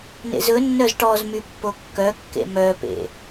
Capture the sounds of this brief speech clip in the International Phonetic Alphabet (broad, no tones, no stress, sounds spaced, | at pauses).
n ḛ z ɵ nː œ z ʈ ɔ z m y pː o kː œ kː ḛ m œ p ḛ